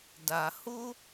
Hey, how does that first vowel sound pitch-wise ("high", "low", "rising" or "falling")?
low